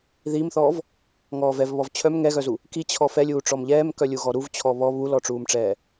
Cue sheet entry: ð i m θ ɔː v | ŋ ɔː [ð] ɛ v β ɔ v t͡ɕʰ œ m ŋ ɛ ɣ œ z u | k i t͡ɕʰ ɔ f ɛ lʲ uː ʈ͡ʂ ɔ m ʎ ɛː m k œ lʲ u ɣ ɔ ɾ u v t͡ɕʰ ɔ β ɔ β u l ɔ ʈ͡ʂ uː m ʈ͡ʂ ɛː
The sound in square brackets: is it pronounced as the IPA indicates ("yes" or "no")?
no